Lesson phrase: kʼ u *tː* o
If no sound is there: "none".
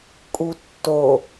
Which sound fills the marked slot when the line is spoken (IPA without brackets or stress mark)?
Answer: tː